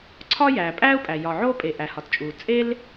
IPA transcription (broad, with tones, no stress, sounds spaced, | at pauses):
ǀʰ ɒ˥ j æː˩ pʼ æː˥ u̯ pʼ æ˩ j ɒ˩ ʕ oː˥ pʼ e˩ ʔ æ˩ h ɒ˩ t t͡ʃʼ uː˩ t͡sʼ e˥ l